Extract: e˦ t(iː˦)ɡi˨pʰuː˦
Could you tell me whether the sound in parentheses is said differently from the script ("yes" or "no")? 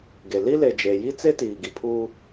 yes